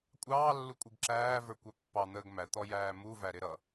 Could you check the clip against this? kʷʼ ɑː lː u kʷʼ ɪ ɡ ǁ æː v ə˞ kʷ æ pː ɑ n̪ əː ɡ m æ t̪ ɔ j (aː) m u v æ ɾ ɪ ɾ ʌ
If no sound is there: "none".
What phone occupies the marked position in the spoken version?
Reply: æː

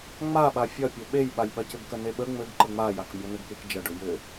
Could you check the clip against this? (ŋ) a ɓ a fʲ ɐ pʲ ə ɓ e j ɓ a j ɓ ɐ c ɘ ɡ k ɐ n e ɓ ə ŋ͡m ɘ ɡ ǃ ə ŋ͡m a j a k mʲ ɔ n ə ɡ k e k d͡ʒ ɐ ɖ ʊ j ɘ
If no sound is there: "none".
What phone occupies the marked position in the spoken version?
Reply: ŋ͡m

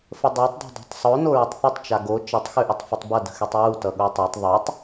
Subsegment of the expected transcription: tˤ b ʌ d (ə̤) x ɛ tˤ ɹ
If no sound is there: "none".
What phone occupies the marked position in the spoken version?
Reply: ə̤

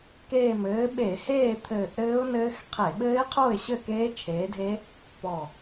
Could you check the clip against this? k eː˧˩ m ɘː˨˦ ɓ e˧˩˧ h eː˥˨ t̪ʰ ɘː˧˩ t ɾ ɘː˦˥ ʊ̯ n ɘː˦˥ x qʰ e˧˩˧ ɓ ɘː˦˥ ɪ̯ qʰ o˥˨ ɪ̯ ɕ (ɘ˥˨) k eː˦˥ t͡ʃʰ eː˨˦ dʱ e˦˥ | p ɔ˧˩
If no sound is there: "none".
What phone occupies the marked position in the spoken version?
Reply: ɘ˥˨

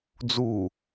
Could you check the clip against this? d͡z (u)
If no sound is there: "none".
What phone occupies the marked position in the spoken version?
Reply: u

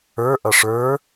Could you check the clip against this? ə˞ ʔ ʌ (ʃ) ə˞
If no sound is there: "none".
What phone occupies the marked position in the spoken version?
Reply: ʂ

